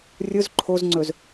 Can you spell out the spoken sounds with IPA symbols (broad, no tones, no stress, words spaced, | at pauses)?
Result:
rʲʊz ǃʰozŋ͡ǀɵz